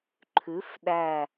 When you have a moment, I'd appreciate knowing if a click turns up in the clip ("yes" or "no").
yes